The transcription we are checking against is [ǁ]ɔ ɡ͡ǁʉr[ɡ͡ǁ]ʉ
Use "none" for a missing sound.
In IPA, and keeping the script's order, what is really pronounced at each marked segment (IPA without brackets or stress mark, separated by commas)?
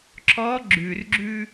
ǁ, ɡ͡ǁ